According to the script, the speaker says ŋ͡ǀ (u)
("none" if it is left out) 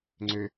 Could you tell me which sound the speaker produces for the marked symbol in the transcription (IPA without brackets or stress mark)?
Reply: ø